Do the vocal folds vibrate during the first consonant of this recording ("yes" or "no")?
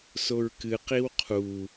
no